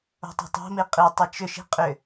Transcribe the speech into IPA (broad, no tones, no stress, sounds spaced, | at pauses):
o̤ tˤ o̤ tˤ o̤ m i qʼ i tˤ i t͡ʃ ʏ ʃ i̤ qʼ ʏ